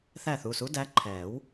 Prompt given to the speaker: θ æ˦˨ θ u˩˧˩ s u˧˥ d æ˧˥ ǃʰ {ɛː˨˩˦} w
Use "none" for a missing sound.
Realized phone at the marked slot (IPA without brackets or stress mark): ɛː˨˩˦